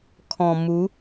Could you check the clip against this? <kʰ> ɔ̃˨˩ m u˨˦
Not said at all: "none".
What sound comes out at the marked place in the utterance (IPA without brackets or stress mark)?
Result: kʰ